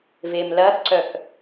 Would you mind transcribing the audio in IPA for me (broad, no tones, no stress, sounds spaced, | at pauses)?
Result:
v e m l ɐ x ǀ œ k